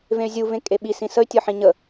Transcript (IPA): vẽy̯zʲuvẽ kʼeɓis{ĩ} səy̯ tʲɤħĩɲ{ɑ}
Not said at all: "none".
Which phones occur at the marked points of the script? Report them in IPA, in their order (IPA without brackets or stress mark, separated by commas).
ĩ, ə